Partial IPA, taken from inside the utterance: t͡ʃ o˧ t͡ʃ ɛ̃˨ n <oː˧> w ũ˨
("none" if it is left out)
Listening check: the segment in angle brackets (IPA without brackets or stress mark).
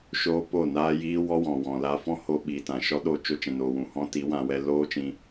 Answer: oː˨